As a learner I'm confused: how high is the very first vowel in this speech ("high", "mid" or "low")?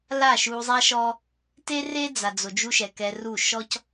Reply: low